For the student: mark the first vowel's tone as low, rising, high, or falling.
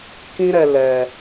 high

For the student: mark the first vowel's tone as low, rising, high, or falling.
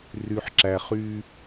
low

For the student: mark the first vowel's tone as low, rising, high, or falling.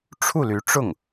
falling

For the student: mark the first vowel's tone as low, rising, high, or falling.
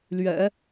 low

